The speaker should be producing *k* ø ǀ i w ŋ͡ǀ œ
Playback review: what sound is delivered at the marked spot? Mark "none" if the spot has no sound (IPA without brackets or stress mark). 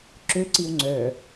ǁ